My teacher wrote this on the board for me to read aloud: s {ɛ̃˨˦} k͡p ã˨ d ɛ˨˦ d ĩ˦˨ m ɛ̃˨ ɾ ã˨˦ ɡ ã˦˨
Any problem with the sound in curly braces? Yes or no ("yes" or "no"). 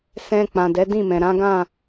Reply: yes